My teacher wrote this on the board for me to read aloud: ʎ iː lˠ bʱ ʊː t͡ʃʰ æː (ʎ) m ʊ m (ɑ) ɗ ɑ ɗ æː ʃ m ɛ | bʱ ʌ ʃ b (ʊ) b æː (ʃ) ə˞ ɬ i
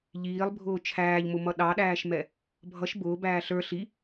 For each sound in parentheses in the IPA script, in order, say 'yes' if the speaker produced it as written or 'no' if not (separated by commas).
yes, no, no, no